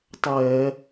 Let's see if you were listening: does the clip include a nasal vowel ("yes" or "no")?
no